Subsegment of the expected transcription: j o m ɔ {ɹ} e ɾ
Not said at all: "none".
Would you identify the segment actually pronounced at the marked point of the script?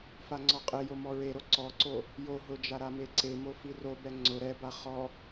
ɹ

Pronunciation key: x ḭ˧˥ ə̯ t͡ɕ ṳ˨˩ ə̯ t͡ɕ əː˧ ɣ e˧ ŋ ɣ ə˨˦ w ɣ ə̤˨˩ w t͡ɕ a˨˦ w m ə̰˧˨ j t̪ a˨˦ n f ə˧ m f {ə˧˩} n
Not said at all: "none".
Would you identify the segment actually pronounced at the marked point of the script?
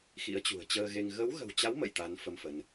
ə˨˦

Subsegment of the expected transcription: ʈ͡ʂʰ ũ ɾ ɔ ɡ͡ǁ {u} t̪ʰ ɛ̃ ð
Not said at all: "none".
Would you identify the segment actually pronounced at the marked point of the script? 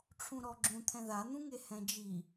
ũ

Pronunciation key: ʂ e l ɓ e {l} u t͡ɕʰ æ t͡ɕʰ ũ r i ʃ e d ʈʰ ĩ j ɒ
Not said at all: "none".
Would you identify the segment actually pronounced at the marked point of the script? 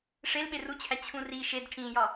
r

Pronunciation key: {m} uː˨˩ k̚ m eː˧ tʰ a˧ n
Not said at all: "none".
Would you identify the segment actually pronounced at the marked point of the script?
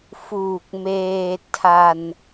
f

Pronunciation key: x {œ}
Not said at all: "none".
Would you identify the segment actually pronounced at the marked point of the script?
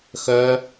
œ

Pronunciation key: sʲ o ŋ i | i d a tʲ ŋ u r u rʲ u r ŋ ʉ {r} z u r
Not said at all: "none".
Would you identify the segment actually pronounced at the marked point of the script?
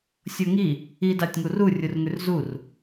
r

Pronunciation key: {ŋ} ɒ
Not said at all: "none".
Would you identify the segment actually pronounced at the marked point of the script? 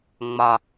ŋ͡m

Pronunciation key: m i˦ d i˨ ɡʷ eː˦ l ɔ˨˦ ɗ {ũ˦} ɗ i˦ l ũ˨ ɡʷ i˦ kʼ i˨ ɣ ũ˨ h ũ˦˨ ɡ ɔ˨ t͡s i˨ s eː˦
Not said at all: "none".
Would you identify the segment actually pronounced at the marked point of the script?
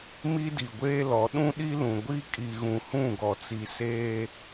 ũ˦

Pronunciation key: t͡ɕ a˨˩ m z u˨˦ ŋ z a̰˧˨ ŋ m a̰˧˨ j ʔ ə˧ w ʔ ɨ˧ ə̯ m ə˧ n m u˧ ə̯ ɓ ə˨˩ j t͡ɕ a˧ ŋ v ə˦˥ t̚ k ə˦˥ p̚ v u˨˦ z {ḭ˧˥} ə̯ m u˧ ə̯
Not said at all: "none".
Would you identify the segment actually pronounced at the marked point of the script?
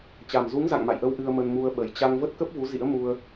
ḭ˧˥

